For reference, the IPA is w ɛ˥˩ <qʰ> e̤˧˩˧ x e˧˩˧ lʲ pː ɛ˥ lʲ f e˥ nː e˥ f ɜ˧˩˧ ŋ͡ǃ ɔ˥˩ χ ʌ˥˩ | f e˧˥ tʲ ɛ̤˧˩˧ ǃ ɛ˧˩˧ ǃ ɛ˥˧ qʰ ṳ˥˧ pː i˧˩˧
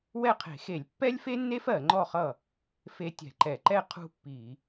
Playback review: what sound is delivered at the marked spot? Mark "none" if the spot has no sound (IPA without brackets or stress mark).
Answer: qʰ